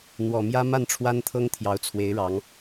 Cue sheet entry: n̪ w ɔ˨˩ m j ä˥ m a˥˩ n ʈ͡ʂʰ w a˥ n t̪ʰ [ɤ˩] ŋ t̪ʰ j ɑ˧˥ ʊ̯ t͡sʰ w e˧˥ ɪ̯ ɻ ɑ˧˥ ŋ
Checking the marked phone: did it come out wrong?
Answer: yes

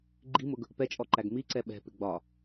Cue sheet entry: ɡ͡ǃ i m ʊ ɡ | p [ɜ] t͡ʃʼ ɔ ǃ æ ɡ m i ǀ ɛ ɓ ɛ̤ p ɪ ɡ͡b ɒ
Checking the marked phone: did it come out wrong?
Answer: yes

